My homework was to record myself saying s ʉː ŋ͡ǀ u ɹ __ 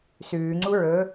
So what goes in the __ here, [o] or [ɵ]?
ɵ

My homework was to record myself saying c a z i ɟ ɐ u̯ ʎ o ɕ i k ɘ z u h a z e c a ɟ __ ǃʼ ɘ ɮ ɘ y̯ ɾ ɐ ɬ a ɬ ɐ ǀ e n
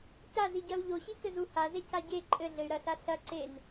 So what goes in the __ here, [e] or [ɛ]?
e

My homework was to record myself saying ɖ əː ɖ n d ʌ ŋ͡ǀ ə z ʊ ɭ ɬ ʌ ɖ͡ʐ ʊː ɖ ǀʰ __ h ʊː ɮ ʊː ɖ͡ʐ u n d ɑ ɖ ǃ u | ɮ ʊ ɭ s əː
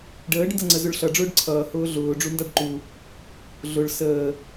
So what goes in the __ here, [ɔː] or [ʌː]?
ʌː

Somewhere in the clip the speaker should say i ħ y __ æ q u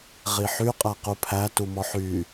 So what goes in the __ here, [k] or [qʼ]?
qʼ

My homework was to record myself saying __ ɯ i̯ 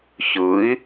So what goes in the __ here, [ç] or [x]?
ç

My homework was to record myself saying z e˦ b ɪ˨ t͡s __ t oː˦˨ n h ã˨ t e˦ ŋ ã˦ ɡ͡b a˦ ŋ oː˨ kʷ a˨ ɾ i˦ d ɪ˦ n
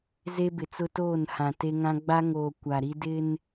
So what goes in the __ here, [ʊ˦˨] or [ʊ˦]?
ʊ˦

